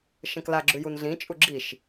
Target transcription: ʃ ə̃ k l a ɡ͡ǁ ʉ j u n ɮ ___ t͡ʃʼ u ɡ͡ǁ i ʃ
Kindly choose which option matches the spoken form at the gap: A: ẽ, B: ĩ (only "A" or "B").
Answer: B